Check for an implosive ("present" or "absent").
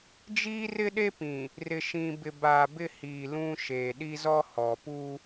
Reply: present